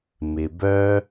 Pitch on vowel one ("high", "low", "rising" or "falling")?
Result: low